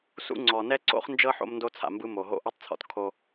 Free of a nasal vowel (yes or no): yes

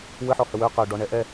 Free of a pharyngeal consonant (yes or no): no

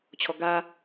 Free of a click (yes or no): yes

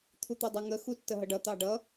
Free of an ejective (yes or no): yes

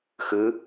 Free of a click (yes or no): yes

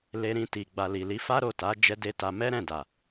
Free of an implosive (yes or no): yes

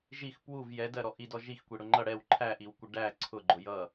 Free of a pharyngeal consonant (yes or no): yes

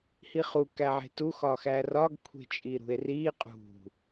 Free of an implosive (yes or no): yes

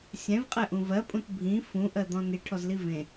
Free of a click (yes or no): yes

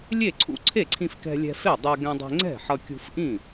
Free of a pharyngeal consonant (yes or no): no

